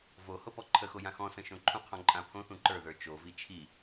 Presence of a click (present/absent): present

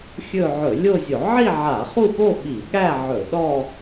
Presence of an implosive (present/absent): present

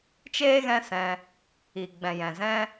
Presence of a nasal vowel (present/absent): present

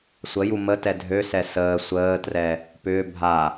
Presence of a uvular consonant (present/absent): absent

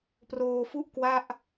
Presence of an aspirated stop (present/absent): absent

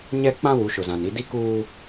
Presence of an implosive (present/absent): absent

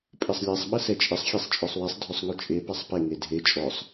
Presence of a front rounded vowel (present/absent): present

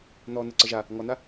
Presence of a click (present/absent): present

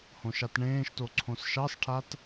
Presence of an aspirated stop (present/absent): present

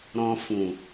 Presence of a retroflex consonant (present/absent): absent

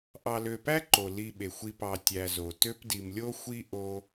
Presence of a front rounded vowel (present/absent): present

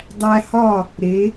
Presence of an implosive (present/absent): absent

